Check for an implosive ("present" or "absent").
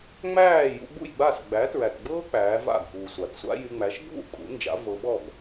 present